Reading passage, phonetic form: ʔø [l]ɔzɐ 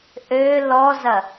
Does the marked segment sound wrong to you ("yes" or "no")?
no